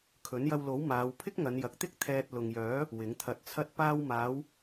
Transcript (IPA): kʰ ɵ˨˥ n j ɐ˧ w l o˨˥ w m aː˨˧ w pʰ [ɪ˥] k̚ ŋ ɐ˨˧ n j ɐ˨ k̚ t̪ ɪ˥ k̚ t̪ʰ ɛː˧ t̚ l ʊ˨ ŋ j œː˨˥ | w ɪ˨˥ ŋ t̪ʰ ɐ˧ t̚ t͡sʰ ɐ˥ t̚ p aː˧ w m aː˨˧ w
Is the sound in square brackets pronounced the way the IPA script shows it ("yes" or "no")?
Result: yes